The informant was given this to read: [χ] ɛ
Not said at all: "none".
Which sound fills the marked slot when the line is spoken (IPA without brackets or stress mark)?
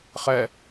χ